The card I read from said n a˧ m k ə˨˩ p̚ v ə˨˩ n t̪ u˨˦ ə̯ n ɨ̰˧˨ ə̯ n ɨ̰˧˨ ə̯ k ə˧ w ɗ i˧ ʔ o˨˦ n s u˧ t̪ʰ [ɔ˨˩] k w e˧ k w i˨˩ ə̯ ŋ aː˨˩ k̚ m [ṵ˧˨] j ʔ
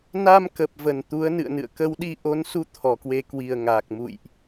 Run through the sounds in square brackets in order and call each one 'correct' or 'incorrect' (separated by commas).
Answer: correct, correct